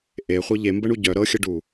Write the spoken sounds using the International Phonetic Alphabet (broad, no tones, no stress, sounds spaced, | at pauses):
ʔ e χʷ ɤ ʎ e m b ə ɳ u ɟ œ ɾ ɤ xʲ ə ɖ u